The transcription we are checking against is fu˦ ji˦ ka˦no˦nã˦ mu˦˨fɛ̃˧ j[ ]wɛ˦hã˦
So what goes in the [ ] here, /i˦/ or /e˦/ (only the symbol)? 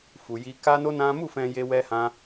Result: e˦